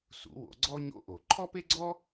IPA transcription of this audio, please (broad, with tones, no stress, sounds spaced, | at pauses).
s ṵ˨˩˦ w o̰˨˩˦ ɡ͡ǀ ɔ˥ ɲ o̰˥ ʔ o˨˩˦ ǃʰ ɔ˥ p e˥ ɡ͡ǀ ɔ˥